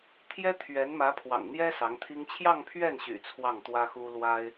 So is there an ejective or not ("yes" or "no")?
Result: no